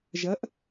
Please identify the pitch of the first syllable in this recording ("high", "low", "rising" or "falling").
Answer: rising